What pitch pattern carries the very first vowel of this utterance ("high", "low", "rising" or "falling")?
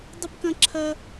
high